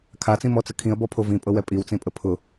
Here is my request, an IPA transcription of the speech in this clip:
kʰ a t͡s ĩ m ɔ t͡s ə kʰ ĩ ə̯ b ɔ pʰ o v ĩ pʼ ɤ w ɛ pʼ i w t͡s ĩ pʼ ə pʰ ʊ

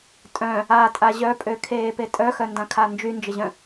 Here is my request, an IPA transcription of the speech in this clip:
tʼ œ̃ | a tʼ a ʑ œ pʼ ø kʰ eː p e tʼ œ x œ n d ã kʰ a n d͡ʒ y n d͡ʒ ə ʑ œ̃

